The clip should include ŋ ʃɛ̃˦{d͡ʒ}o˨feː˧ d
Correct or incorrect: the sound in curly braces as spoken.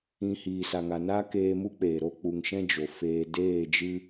correct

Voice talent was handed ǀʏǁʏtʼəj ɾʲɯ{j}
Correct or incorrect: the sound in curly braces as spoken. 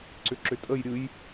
correct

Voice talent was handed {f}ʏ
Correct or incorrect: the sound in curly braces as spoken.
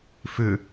correct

